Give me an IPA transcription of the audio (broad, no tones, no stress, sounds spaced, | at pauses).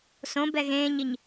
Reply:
s õ b ɛ ɣ ẽː ɲ i ɲ